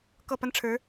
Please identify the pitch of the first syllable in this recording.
falling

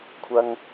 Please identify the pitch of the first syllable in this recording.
high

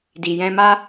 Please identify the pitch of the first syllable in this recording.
low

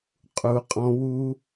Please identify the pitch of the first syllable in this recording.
low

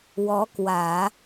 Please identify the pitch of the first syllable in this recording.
rising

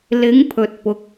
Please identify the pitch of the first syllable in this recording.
rising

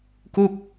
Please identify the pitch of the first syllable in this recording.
falling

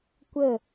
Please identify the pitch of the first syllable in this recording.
falling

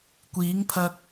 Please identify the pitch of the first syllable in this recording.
rising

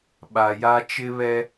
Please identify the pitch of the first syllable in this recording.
low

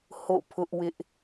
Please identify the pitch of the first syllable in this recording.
falling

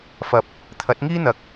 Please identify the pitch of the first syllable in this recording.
low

